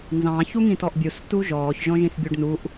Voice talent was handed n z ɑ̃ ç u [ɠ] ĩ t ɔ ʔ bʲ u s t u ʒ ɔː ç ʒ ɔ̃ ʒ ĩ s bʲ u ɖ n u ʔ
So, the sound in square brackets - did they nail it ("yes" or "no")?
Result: no